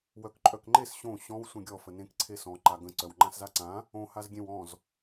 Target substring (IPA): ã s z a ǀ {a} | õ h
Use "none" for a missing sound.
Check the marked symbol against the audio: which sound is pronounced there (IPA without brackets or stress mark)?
ã